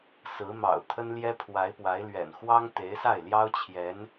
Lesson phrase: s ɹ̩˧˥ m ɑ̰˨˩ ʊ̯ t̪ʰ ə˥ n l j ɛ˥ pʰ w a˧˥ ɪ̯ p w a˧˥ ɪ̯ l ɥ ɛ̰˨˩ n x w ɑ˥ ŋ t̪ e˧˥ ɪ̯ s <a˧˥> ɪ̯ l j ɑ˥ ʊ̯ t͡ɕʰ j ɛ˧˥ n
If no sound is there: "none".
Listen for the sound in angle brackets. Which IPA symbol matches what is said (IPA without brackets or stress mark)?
a˥˩